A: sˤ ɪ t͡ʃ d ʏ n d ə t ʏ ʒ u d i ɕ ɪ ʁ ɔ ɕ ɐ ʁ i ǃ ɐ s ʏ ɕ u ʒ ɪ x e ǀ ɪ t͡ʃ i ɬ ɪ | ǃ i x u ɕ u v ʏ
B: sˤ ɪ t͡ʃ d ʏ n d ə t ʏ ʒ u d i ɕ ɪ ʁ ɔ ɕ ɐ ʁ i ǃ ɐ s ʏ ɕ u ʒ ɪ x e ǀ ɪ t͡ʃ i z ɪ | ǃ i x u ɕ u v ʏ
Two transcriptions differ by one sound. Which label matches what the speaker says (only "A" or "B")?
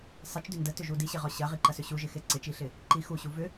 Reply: A